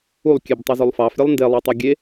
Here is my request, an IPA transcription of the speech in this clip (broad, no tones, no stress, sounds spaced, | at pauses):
u lˠ kʲ e b tˤ ɛ z o lˠ f ɑ f ɾʲ e lˠ n d e lˠ e tˤ ɐ ɡʲ e